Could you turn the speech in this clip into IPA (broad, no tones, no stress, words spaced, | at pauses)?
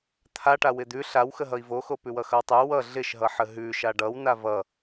t̪ʰaʈawɪ d̪ʉ ɬawxəɦʌi̯ voxo pʉwʌxʌwtˤʉ wʌ ɮɪʃɦʌħə ɦʉ ʃaɖʌwna vʌ